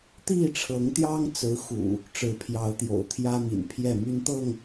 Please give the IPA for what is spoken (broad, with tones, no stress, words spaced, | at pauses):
t̪i˥˨ʈ͡ʂʰɤ˨˦ŋt̪jɑ˦ŋt͡sɹ̩˨˦ xṵ˨˩ | ʈ͡ʂɻ̩˨˦pʰjɑ˨˦ʊ̯t̪jo̰˨˩ʊ̯ t̪ʰjä˦mḭ˨˩npʰjɛ˥˨ my˦nt̪ɤ˥˨ŋ